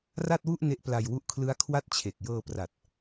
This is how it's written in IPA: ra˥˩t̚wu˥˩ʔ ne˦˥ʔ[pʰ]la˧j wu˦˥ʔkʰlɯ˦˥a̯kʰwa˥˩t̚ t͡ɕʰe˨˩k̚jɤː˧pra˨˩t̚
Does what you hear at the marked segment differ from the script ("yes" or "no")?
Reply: yes